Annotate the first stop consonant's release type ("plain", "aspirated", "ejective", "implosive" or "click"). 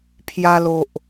aspirated